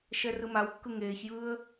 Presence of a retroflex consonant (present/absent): absent